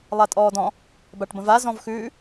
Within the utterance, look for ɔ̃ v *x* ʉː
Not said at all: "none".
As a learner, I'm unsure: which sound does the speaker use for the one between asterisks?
x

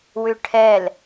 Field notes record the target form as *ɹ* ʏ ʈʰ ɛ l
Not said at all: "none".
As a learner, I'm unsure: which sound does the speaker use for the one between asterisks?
w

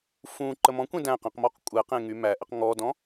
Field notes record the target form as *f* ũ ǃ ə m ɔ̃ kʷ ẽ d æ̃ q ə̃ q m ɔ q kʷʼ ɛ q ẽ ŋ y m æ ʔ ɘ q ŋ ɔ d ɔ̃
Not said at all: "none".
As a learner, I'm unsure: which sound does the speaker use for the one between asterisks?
f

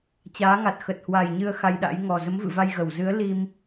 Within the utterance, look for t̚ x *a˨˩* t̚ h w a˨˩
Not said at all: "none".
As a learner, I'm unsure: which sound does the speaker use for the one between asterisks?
ə˨˩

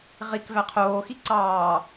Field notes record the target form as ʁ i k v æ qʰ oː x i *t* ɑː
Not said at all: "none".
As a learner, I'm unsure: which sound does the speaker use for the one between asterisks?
ǀ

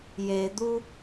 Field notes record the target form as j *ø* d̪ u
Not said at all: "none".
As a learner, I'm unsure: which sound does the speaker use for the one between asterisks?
e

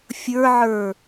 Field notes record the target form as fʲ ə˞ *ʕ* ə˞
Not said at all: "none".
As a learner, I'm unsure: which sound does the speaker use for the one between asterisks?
ʕ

